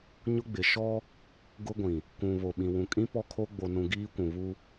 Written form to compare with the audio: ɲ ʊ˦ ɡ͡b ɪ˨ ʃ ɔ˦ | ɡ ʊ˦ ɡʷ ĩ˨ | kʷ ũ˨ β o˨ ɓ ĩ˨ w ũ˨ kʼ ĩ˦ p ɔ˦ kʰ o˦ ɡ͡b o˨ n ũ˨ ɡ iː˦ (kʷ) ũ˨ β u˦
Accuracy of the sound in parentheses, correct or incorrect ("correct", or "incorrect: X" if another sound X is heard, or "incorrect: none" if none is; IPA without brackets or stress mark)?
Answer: correct